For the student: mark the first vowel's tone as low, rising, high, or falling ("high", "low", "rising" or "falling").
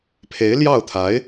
rising